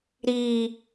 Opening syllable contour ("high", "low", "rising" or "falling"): low